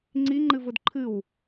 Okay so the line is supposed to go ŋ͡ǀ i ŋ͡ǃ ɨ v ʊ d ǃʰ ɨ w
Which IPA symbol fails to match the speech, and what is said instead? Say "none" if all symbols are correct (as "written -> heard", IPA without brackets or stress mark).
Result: none